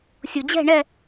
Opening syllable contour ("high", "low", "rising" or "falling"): low